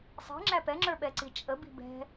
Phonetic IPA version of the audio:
sˤ i̤ ŋ͡ǁ æ p ɛ ŋ͡ǁ ə˞ ɓ ɛ ǀ i t͡ʃʼ ə b i̤ b ɛ̤

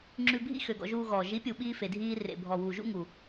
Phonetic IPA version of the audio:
ŋ͡ǁ ʉ˧ bʱ ḭ˦ x ø˨ ɡ ɔ̰˧ ʒ uː˧ ɣ ɔː˨ ʒ i˨˦ pʲ u˨ ɓ iː˦ f e˨ dʱ iː˧ r ḛ˨ bʱ ɔ˨ w uː˨ ʒ ṵ˦ ŋ u˨

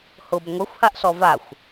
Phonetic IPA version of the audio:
h ʊ b ŋʷ ɛ xʷ h a ʔ ɬ ɔ v a xʷ

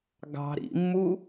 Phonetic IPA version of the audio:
ɡ ɑ̤ ɾ ḭ mː u

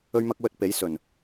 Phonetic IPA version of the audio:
ɵ˥ ɥ m ɐ˥ k̚ w ɵ˧ t̚ p e˨˥ j s ɵ˨˩ n

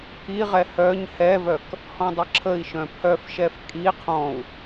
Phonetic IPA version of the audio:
pʰ i ʁ ɛ h œ ɲ h ɛ v œ k | h ɔ̃ dˤ ə ǁʰ ə i̯ ʃ œ̃ pʰ œ f ʃ ɛ f kʼ i qʰ ɔ̃ u̯

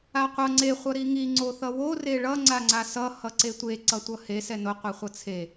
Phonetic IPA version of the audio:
a qʷ ʌ ŋ͡ǀ e χʷ ʌ ɾ i ŋ i ŋ͡ǀ o θ ʌ w o r e ɭ ʌ ŋ͡ǀ a ŋ͡ǀ a s ʌ h ʌ ǀ e tʷ e ǀ ʌ tʷ ʌ h e s ɛ n o qʷ i χʷ ʌ t͡sʰ e

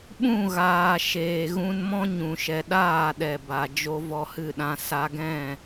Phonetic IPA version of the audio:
ɓ ũ˦˨ ɣ aː˨ ʃ eː˨ ɣ ũ˧ n m ɔ̃˦ ɲ ũ˨ ʃ ɛ˨ ɗ aː˦˨ ɗ ɛ˨ b a˨ d͡ʒ o˧ v ɔ˧ h ɨ˦˨ ɗ ã˧ s a˧ ɡ ɛ̃˦˨

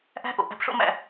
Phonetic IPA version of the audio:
ʔ æ̤˦ ʔ o̰˨ ʔ æ̤˧ p ʂ o̰˦ m æ̰˦˨

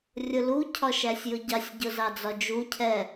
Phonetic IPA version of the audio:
rʲ ʊ l u cʰ ɒ ʃ æ sʲ j ʊ ɟ ɑ sʲ ɟ ʊ z ɑ d͡z ɒ d͡ʒ u cʰ ɛ

